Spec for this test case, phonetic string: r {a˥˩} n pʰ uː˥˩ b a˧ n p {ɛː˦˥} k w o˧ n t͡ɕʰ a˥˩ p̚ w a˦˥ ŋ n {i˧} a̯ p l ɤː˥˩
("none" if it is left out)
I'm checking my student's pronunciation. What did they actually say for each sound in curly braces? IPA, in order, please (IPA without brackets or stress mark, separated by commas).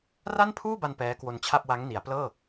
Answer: a˥˩, ɛː˦˥, i˩˦